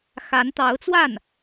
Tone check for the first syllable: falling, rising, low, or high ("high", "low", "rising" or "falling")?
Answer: rising